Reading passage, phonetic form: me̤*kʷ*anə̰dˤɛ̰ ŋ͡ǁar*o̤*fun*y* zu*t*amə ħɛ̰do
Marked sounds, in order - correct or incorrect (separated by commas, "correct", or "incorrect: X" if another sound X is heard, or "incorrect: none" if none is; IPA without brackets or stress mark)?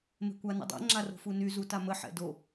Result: correct, correct, correct, correct